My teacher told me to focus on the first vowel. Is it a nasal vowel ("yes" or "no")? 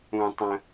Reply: yes